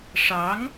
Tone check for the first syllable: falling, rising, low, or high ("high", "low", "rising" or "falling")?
rising